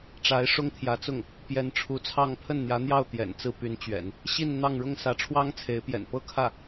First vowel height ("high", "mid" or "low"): low